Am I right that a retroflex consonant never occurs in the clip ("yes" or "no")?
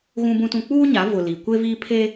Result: yes